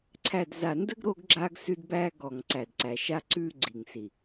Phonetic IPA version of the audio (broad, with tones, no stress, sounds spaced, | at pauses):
ǀʰ æ˨ d z a˨ n d ə˦ ɡ ɾ o˦ ɡ ɡ͡ǁ a˦ ɡ s ʉ˦ d b æ˦ ɡ ɔ˨ ŋ ǀ æ˨ d ǀ æ˨ ʃ a˦ ǀ ʉ˦ ɡ͡ǀ i˨ ŋ s i˨